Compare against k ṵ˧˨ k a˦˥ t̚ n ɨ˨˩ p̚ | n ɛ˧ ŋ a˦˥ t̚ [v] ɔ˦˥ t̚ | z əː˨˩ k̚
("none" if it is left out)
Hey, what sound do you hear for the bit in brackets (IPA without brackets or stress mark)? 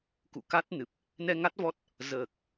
v